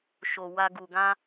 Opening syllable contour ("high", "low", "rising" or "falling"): low